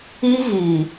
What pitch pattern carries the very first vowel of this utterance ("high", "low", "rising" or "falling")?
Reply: high